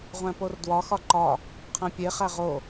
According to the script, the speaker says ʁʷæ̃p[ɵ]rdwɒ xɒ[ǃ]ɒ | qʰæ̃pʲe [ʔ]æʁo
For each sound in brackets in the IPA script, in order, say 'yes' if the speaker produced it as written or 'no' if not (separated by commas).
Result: no, yes, no